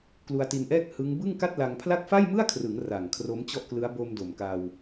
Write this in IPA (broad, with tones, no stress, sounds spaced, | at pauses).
k l u˧ a̯ t i˧ n ʔ ɛː˥˩ k̚ h ɯ˦˥ ŋ b ɯ˥˩ ŋ k a˥˩ t̚ l a˧ ŋ pʰ l a˥˩ k̚ f a˥˩ j m ɯ˥˩ a̯ kʰ r ɯ˩˦ ŋ r a˨˩ ŋ kʰ r o˦˥ m t͡ɕ ɔ˥˩ ʔ k l ɯ˦˥ a̯ b o˧ m d o˨˩ m k a˧ w